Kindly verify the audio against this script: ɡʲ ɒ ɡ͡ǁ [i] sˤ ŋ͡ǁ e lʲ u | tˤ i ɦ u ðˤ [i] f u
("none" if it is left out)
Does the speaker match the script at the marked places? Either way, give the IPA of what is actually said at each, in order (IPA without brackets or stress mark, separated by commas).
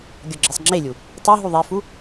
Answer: i, i